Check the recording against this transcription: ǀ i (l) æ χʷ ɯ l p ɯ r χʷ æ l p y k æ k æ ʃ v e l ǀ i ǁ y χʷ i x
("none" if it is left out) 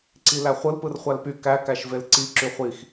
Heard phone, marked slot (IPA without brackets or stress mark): l